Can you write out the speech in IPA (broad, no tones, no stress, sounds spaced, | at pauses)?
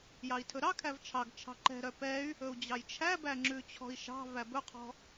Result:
j ɑ i̯ tʰ ɵ ɾ ɑ kʰ æ v t͡ʃʰ ɑ ɡ t͡ʃʰ ɑ̤ ǃ ɛ̤ ɾ œ p ɛ y̯ | ɵ u̯ d͡ʑ ɑ j t͡ʃʰ æ b æ ŋ͡ǁ ʉ t͡ɕʰ ɔ̤ i̯ ʃ ɑ̤ v æ b ɵ qʰ ɔ̤